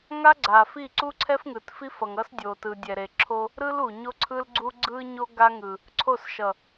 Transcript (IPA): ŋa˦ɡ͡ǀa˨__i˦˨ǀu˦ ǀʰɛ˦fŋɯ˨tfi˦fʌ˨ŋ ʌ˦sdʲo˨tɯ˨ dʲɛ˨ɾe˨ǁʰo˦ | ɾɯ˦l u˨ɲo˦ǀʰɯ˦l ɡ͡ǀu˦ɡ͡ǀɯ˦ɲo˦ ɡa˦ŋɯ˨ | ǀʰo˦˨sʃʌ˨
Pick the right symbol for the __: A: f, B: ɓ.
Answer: A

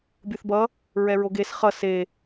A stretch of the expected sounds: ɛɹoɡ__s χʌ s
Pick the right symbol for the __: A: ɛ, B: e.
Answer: B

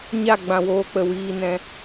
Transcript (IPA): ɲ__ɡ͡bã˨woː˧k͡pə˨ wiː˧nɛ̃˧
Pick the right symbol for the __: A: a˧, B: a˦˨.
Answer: B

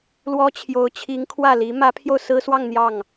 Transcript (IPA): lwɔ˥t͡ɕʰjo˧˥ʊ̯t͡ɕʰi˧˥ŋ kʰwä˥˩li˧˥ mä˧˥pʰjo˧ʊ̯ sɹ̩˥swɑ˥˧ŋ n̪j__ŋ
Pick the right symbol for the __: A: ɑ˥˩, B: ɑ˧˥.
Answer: A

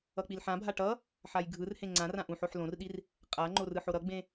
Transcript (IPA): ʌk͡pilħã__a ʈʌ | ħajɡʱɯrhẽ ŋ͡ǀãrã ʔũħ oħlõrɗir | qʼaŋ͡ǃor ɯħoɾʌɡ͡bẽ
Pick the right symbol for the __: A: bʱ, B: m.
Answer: A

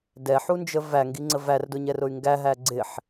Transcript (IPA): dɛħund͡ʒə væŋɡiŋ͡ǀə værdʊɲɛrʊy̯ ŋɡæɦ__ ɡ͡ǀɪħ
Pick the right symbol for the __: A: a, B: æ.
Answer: B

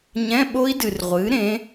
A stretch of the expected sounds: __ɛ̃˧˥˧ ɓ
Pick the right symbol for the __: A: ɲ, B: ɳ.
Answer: A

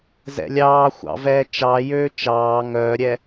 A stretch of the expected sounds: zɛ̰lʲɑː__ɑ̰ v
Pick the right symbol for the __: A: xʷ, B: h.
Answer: A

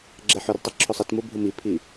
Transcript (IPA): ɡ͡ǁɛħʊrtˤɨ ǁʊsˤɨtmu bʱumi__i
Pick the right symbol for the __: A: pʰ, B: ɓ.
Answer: A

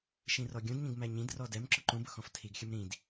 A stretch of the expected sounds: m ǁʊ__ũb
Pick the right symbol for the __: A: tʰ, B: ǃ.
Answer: B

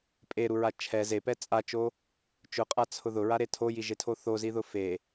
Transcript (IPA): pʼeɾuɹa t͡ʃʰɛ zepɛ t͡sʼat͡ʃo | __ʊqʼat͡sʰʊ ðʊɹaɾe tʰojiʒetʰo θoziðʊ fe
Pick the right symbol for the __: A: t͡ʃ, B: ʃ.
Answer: A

